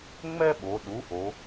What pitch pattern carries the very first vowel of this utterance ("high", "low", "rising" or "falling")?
high